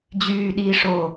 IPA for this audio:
d͡ʑ yː ɗ iː ʂ o

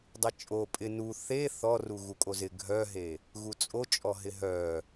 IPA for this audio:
dˤ ɪ t͡ʃʼ o pʼ ɪ n u θ e θ ɔ r u ɣ u kʼ o z ɪ ɡʱ œ ɦ e | ɣ u t͡sʼ o t͡ʃʼ ɔ ɦ ɪ ɦ œ

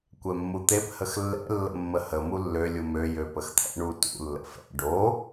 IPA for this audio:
kʷ ɛ mː u t̪ e p h ə x lː ɛ̰ lː ə̰ mː ə h ə m u lː ø lʲ u m ø j ø p ə x t̪ʰ ɛ̰ ɳ u t ṵ lː ə̰ f ɛ̰ ɖ o

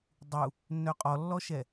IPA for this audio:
dˤ u | nː œ qʼ ɔ lː ɔ ʃ ɛ

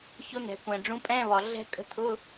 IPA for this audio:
ç ʊ˦˥ n̪ ɛ̤˩ kʷ ɛ̃˩ ɖ͡ʐ ũ˨˥ pʼ ɛ̃˧˥˧ β ɒ˩ ɮ ɛ̤˦˥ kʼ ə̤˧˥˧ t̪ʰ ʊ˧˥˧

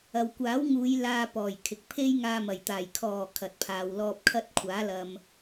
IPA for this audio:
ɐ˨ w kʷ aː˨˥ w ŋ uː˨˧ j l aː˧ p ɔː˨˩ j kʰ ɪ˨ k̚ pʰ e˥ j ŋ aː˧ m ɐ˨˩ j t̪ aː˨˩ j kʰ ɔː˨˩ kʰ ɐ˨ t̚ pʰ aː˨ w l ɔː˧ p̚ kʰ ɐ˥ t̚ kʷʰ aː˨˥ l ɐ˨ m

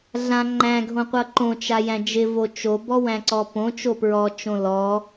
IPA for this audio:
ɮ ã ŋ͡ǃ æ̃ ɡʱ õ qʷ ʌ ǃ õ t͡ʃ a j æ̃ d͡ʒ ɪ v o t͡ʃ o b ɔ w æ̃ ǀ ɔ p õ t͡ʃ o p ɹ ɔ t͡ʃ õ l ɔ

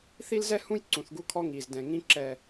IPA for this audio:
θ i˦ l z ɛ˦ h ũ˦ j ǀ ũ˨ θ ɡ u˦ kʰ ɔ˦ ŋ iː˨ z d ɛ̃˨ ŋ ĩ˦ ǁ ɛ˨

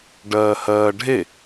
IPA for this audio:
ɖ ɜː h ɜː ɖʱ e

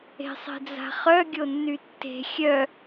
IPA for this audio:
e̤ sˤ e̤ d͡z a̤ χ œ ɡʲ o nː y tː e̤ xʲ œ

